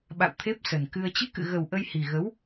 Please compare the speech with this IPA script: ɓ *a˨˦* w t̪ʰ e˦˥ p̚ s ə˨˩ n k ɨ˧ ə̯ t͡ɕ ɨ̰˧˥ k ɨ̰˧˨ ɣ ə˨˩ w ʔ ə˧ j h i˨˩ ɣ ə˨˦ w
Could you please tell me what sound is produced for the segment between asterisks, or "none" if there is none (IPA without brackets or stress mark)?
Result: a̰˧˨